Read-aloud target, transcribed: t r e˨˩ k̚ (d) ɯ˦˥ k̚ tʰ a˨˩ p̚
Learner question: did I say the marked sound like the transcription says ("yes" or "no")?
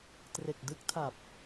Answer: yes